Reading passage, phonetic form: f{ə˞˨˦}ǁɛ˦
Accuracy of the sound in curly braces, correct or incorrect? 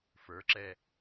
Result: correct